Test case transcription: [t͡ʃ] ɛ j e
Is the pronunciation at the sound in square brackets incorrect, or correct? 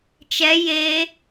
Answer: correct